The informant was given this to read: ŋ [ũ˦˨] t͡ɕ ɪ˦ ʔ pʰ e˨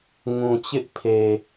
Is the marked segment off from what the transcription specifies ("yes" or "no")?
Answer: yes